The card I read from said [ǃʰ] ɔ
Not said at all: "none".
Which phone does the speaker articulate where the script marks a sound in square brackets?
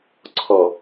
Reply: ǀʰ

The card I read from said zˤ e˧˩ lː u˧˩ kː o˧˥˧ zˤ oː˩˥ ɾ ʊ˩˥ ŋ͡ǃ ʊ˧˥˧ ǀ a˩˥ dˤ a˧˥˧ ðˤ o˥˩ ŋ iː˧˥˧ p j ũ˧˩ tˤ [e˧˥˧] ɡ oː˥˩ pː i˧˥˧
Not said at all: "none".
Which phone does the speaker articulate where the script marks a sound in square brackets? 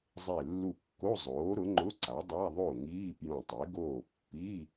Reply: e˩˥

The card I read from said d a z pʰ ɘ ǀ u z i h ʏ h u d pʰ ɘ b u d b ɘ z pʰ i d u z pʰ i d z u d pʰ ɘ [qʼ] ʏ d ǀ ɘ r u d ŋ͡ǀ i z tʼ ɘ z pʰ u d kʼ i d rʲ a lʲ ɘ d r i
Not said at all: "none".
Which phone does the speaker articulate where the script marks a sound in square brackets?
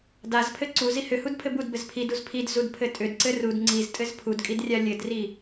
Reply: tʼ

